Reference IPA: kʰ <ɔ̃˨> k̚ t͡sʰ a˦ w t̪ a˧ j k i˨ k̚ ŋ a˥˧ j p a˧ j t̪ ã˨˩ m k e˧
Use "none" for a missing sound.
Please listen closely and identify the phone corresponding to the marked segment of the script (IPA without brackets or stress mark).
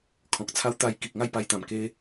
ɔ̃˨